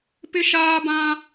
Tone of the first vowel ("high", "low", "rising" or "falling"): high